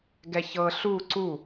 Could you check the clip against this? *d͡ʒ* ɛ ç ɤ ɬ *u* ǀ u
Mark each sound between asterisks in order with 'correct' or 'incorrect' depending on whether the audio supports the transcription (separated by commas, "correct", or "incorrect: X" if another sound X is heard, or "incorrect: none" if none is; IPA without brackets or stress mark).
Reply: incorrect: ɡ, correct